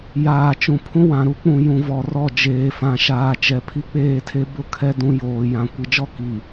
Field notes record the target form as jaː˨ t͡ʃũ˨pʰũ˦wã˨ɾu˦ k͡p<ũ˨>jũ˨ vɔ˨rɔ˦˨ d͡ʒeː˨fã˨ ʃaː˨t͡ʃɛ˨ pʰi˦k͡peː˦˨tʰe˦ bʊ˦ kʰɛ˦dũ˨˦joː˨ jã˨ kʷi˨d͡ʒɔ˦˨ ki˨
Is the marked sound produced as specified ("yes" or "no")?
yes